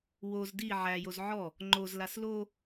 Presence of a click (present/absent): present